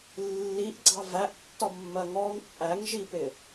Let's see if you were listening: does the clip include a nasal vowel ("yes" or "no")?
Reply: no